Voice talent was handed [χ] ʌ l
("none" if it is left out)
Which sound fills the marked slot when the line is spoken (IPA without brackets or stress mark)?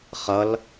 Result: χ